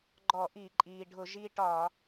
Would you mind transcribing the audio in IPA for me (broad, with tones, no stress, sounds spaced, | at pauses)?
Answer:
ɡ͡ǃ ɔ˧˩˧ ʔ i˧˩˧ ǃʼ iː˩ ɖʱ ʊ˧˩˧ ʒ i˧ ʈ ɒ˧˩˧